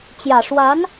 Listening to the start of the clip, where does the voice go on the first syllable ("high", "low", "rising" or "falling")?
low